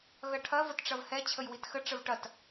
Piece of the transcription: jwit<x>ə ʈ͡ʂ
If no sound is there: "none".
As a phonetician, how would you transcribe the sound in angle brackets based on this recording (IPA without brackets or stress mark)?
x